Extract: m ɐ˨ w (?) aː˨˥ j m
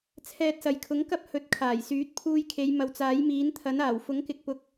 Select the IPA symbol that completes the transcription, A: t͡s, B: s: A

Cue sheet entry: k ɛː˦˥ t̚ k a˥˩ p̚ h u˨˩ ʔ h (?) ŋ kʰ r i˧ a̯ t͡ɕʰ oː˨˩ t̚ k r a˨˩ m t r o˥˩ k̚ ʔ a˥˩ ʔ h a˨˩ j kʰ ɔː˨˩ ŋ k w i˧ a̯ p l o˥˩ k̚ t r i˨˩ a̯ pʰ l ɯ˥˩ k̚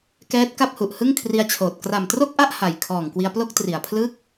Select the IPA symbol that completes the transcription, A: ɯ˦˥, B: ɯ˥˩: B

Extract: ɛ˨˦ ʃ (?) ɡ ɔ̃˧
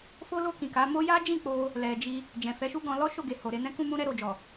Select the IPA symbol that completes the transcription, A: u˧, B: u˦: B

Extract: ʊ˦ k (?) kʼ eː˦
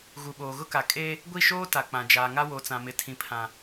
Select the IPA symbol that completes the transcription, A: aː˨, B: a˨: B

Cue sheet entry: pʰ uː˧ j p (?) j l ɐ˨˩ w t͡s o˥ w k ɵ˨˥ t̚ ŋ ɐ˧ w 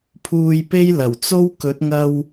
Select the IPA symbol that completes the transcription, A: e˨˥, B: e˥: B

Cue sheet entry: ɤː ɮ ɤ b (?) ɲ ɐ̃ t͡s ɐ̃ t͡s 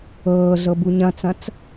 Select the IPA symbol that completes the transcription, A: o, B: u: B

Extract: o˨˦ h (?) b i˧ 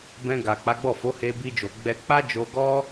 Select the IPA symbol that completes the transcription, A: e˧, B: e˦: A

